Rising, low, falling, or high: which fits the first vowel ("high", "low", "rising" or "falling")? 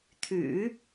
low